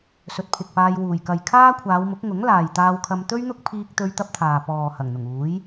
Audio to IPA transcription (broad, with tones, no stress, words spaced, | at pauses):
sɵ˨˥t̚pʰɪ˨k̚paː˧j wuː˨˩jkɐ˨j kʰaː˥kʷʰaː˨˧wmʊ˨˥k̚ ŋʊ˨˥ŋlaː˨jt̪aː˧wkʰɐ˧m t̪ɵ˥ɥn̪ʊ˥k̚ pʰiː˥k̚t̪ɵ˥ɥt̪ɐ˥p̚t̪ʰaː˨ pɔː˨ hɐ˨˩ŋn̪ʊ˨˩ŋuː˨˥j